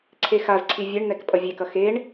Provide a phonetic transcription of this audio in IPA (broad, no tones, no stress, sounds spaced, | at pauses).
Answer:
ǀʰ e x a z ǀʰ i vʲ e ɳ n̪ ɛ k pʼ ʌ vʲ e k ʌ x e ɳ